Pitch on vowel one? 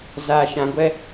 low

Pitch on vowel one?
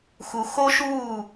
low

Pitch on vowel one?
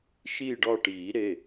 falling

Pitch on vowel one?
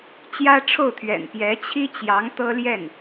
high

